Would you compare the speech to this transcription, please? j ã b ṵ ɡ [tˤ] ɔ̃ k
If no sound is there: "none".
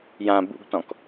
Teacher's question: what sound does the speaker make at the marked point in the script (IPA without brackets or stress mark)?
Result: t